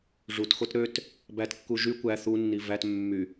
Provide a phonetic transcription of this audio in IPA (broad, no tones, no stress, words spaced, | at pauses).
ʐutxot ɾøt | bætkːu ʒy kʷæ θunːi væt mːy